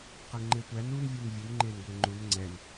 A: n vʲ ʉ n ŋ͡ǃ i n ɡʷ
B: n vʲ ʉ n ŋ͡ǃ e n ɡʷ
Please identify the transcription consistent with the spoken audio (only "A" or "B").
B